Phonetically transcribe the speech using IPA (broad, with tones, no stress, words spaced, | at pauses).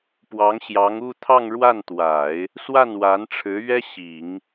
pwɑ˧˥ŋɕjɑ˧˥ŋu˥˧ t̪ʰɑ˥˧ŋɻwa˥˩nt̪wa˨˩˦ɪ̯ | swa˥˩nwa˧˥nʈ͡ʂʰɻ̩˧˥ ɥɛ˥ɕi˨˩˦ŋ